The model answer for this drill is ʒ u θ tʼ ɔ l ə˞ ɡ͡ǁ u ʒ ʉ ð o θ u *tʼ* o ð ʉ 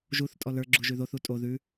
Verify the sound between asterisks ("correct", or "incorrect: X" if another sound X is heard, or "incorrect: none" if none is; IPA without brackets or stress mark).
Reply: correct